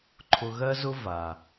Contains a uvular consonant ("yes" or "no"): no